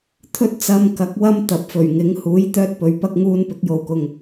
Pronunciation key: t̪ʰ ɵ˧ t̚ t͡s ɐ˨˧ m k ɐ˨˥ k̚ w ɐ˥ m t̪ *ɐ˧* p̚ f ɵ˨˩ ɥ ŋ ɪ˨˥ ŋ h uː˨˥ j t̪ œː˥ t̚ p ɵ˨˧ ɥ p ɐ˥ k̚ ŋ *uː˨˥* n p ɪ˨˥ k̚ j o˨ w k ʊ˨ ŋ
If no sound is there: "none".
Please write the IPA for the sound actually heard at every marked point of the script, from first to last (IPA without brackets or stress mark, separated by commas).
ɐ˨, uː˧